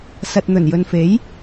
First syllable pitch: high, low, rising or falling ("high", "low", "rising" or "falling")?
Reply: low